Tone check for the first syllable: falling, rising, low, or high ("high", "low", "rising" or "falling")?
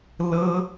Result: high